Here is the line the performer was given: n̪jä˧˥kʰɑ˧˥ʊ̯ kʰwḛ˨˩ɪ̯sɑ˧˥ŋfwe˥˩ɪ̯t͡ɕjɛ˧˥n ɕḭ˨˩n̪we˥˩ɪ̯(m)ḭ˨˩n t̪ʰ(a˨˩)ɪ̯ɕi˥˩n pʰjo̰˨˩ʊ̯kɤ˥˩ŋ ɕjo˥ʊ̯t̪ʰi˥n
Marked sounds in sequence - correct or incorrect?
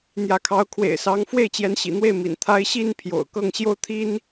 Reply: correct, incorrect

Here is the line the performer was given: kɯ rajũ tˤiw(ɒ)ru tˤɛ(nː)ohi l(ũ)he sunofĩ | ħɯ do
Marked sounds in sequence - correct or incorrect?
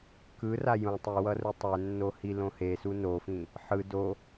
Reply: incorrect, correct, incorrect

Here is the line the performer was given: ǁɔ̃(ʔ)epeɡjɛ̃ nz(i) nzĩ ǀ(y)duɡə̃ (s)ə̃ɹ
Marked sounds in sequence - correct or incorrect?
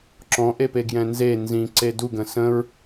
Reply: correct, incorrect, incorrect, correct

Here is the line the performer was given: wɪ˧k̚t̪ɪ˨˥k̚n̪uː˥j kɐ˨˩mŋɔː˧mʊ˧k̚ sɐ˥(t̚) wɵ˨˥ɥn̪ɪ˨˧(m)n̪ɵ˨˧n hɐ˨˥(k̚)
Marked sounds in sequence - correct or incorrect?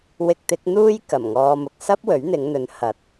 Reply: incorrect, incorrect, incorrect

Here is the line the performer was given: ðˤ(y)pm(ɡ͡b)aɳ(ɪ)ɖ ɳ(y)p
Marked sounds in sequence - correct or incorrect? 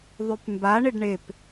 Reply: correct, incorrect, correct, incorrect

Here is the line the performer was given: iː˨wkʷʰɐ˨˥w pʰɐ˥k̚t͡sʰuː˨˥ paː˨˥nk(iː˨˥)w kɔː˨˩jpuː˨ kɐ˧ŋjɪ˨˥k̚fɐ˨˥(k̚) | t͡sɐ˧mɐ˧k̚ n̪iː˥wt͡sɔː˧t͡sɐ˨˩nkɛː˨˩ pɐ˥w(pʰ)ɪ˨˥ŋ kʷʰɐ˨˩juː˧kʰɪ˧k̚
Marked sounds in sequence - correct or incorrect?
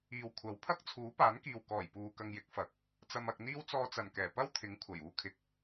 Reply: incorrect, correct, incorrect

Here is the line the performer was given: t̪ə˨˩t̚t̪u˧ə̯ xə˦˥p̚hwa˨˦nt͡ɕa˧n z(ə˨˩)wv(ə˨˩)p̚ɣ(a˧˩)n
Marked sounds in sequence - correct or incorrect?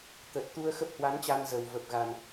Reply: correct, correct, incorrect

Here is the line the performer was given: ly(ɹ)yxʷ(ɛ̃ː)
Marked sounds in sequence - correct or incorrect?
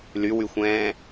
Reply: incorrect, correct

